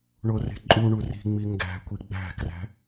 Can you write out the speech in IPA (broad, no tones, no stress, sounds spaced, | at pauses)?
ɳ o r e̤ ǃʼ u ɳ u r i̤ ŋ͡m i ŋ ɡ æ̤ kʷ i ɡ͡b æ̤ k r æ̤